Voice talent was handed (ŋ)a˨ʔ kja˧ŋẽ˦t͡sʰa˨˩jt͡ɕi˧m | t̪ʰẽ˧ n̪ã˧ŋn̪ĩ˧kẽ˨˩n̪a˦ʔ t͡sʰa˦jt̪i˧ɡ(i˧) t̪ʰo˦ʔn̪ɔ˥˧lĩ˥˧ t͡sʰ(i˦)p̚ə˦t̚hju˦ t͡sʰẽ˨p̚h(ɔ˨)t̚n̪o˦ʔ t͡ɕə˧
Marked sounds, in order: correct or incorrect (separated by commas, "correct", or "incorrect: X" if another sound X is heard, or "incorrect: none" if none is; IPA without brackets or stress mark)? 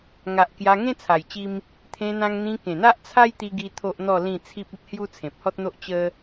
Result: correct, correct, correct, incorrect: ɔ˦